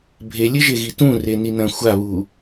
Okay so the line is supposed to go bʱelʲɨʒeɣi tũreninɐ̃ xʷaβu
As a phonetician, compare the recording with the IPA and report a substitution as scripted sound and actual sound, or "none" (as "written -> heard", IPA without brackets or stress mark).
none